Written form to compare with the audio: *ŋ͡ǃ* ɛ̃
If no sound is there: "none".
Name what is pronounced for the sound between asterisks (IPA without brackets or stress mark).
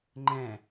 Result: ŋ͡ǃ